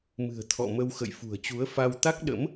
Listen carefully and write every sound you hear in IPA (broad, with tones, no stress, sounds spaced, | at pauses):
m ɨ̤˨˩ ə̯ t̪ʰ ɔ̰˧˨ m ə˧ w x ə̰˧˨ j f ṳ˨˩ ə̯ t͡ɕ u˨˦ ə̯ f a˧ w t̪ a˦˥ k̚ ɗ ə̰˧˥ m